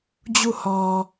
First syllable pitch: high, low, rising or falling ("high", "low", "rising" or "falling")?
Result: falling